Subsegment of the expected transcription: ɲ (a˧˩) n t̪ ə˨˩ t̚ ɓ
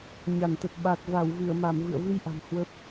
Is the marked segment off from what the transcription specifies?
no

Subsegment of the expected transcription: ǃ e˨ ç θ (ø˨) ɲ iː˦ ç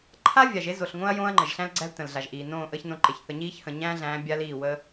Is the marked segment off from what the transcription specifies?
yes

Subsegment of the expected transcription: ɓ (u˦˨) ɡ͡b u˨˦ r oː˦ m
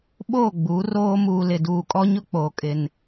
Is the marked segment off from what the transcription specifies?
yes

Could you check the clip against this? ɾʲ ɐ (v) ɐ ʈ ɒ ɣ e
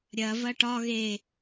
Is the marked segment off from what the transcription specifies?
no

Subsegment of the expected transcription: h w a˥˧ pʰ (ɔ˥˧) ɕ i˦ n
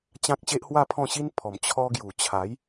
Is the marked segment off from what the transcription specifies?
yes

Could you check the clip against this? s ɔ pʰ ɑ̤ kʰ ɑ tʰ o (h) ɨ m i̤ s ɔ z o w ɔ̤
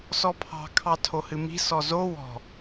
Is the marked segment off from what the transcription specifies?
no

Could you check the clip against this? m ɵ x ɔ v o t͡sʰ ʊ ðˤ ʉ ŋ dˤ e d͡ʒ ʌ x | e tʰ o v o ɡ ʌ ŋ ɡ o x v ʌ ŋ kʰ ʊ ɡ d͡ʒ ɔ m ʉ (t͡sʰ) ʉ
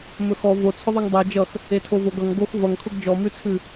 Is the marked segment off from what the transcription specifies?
no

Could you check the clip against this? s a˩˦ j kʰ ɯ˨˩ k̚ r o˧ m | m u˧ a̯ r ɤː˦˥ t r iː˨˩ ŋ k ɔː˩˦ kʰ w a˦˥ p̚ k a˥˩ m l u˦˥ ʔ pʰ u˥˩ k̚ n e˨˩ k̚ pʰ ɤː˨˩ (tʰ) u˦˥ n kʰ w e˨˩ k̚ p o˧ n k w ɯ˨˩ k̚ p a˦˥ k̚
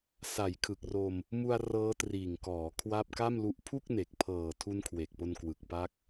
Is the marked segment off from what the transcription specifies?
no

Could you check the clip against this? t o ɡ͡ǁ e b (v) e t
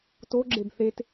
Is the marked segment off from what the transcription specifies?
yes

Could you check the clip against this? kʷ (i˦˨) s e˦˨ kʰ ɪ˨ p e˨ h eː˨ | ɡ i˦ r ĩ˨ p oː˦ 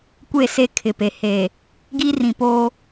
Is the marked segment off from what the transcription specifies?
yes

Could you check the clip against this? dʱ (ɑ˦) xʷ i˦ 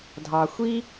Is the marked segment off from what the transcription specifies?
yes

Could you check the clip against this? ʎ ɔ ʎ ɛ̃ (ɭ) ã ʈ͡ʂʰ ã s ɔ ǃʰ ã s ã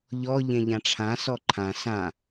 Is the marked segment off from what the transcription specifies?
yes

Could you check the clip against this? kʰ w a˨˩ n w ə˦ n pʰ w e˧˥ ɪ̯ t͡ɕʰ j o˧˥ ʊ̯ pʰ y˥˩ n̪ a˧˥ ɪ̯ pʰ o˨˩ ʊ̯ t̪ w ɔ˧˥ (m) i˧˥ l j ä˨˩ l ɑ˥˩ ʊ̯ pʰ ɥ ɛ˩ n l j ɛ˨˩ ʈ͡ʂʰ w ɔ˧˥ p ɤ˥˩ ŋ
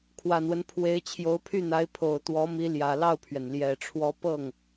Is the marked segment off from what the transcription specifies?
no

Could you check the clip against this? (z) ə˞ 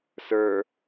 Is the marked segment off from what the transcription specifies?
yes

